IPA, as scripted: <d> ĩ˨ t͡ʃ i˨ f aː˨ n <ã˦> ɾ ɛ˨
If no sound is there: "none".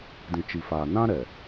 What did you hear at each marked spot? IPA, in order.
d, ã˦

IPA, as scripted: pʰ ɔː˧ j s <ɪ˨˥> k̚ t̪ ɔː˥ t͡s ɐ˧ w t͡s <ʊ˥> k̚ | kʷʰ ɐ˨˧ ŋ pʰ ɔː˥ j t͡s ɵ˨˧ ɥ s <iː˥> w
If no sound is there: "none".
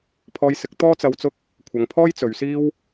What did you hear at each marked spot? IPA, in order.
ɪ˨˥, ʊ˥, iː˥

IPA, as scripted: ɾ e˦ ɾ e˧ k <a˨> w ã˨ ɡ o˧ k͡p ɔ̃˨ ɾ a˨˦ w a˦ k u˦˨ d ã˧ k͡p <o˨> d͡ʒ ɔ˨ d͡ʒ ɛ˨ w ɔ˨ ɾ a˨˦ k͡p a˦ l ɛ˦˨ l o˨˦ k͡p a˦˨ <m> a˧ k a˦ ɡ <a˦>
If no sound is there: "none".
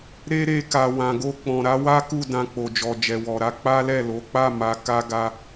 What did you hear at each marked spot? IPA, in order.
a˨, o˨, m, a˦

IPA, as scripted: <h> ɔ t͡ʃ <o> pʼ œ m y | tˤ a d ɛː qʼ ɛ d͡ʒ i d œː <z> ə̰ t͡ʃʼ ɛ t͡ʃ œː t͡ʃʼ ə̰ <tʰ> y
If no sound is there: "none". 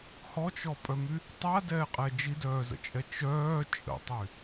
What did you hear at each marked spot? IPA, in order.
h, ɔ, z, tˤ

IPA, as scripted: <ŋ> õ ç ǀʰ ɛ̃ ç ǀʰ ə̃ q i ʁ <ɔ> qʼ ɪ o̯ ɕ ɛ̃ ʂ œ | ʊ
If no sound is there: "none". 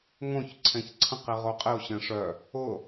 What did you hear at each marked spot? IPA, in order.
ŋ, o

